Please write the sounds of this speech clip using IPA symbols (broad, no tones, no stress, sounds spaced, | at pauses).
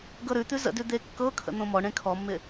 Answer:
ɡ ɤ ɾ ʉ t̪ ʉ z ə̰ d ʉ d̪ e kː ɤ kʰ ə̰ n̪ õ m ɔ ɳ ẽ kʰ ɔ mː ɪ